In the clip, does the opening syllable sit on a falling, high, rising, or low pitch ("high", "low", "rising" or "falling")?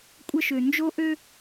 high